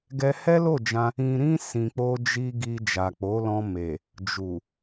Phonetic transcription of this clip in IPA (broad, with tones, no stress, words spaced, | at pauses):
ɡɛ˧hɛ˦lo˦˨d͡ʒã˧ | ĩ˨ɾĩ˧ sĩ˨k͡po˧d͡ʒi˧ ɡi˧ d͡ʒa˨k͡po˨˦ lɔ̃˧ me˨ | d͡ʒu˨